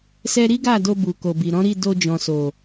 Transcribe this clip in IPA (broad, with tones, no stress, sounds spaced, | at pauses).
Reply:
s ɛ˦ ɾ i˦ ɡ a˦˨ d o˧ b u˨ k o˨ b i˨ ɾ ɔ̃˨˦ ɾ i˦˨ d o˧ d͡ʒ ɔ̃˨ s o˨